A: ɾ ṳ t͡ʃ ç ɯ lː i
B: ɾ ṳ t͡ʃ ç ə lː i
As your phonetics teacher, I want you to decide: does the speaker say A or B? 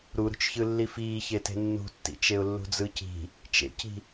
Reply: A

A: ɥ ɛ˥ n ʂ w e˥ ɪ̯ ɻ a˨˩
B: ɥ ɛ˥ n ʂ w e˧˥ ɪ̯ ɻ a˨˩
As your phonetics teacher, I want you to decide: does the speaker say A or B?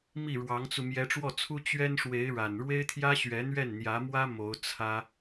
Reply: B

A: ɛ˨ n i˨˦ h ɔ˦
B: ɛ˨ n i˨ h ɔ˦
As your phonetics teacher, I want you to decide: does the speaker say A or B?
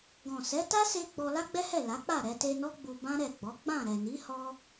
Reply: A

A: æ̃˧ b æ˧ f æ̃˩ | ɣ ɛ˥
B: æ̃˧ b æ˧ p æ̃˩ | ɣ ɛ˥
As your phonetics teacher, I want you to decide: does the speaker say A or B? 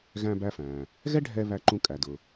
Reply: A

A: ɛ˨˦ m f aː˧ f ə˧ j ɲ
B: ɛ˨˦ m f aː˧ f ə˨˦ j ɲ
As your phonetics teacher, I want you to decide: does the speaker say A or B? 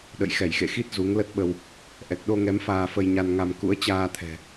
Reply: A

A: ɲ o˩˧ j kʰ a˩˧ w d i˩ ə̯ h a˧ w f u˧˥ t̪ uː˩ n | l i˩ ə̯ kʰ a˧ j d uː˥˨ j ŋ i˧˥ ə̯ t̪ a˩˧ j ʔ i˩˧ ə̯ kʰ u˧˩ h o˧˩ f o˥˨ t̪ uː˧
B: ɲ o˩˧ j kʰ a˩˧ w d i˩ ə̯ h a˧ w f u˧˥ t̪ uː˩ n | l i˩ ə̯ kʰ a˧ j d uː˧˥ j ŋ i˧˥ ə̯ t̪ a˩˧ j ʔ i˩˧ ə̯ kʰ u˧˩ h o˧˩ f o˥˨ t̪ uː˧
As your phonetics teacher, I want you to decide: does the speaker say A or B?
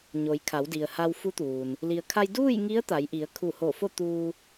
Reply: A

